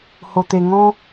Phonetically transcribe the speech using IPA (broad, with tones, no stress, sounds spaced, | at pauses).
h o˧ t̪ e˧ ŋ ɔ̃˦